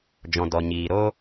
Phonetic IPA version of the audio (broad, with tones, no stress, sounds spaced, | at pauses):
d͡ʒ ɔ̃˨ d ɔ˨ ɲ iː˨ ɾ o˦